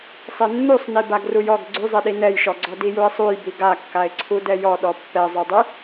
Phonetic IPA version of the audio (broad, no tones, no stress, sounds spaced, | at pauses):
sˤ e nː u sˤ n i b a ɡ r u j ɔ ɡ ɡ͡ǀ y zˤ e ɗ i n ɛ j ʃ ɔ ɡ͡ǀ ɔ d i j u ɪ̯ sˤ u j b i ɡ a kː a ɪ̯ ǀʰ u d ɛ j ɔ ɗ ɔ pː ɛ zˤ y dˤ y